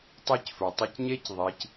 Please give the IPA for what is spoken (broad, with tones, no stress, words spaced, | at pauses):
tˤi˥cfə˞˩ tˤɨ˧cɲe˥c ðˤi˩˧c